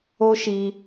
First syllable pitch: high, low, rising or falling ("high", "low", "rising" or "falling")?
high